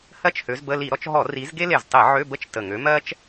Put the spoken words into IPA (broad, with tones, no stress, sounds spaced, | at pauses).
h ɜ˥ t͡ʃ h ø˨˦ z b ə˧˥˧ l i˧˩˧ ɾ ɔ˧˩˧ t͡ʃ ɦ ɔ˧˩˧ r i˨˦ z ɡ e˥ l e˨˩ z tˤ i˧˩˧ ʕ ø˧˥˧ b ə˥ t͡ʃ t ə˨˩ ŋ ø˨˦ m ɜ˥ t͡ʃ